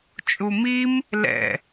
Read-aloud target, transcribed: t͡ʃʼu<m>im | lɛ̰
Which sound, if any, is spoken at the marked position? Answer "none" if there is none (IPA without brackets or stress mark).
m